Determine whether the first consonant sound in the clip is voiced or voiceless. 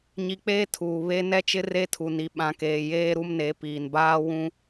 voiced